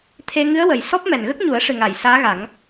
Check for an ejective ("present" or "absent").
absent